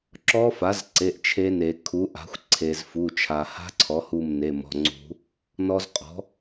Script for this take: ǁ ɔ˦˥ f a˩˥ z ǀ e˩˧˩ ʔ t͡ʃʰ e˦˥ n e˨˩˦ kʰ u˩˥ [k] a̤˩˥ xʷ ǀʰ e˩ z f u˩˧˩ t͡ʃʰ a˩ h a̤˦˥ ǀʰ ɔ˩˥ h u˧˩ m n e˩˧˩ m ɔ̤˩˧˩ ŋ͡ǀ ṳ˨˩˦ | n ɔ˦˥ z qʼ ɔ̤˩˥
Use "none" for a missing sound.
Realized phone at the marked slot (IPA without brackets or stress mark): ʔ